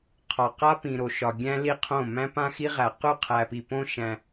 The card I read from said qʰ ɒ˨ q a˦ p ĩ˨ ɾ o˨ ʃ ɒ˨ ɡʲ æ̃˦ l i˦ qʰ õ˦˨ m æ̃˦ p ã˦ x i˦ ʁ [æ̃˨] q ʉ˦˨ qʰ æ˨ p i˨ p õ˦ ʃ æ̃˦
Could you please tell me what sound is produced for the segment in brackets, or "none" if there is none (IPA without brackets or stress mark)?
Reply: æ˨